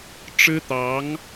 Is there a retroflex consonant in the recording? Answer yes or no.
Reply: yes